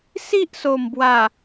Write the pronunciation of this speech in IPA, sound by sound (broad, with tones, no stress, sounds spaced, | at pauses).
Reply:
s i˦ ʔ s o˨˩ m b w a˨˩